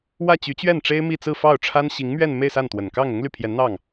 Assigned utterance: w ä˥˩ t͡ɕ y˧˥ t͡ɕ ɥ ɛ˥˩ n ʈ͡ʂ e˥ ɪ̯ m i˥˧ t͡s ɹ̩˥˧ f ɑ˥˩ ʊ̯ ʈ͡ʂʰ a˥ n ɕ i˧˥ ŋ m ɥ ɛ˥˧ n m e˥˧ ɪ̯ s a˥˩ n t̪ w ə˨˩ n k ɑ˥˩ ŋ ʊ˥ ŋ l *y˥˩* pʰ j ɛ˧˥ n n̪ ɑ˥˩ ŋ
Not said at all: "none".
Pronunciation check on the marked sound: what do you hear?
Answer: y˥˩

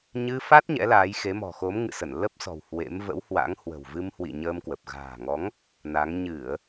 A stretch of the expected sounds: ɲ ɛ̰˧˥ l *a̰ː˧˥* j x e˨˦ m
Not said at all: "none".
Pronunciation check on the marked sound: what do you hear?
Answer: aː˨˦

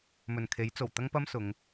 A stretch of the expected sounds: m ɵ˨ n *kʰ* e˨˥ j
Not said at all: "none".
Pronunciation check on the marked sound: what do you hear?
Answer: kʰ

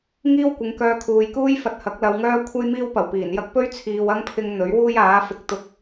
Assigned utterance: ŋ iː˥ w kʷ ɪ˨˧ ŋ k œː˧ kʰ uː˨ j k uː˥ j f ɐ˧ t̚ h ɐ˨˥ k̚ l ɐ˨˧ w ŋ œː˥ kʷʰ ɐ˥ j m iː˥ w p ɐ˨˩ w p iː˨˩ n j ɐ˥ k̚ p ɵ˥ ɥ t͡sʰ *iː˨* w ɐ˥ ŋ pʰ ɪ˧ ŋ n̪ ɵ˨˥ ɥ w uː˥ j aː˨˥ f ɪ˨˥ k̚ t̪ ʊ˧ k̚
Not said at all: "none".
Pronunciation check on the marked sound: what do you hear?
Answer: iː˨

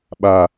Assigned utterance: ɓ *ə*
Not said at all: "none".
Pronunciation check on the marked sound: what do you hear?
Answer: a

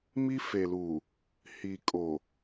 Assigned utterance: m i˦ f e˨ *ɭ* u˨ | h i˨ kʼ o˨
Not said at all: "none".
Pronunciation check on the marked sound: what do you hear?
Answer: l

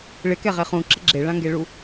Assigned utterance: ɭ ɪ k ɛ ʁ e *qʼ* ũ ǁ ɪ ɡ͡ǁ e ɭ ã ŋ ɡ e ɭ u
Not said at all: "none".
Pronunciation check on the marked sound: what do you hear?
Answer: χ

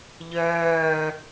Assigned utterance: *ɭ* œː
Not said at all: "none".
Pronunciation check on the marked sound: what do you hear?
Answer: ʎ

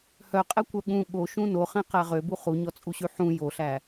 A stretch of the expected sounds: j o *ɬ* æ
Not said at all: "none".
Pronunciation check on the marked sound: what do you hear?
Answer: ɬ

